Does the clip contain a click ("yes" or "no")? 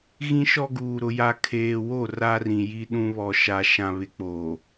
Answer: no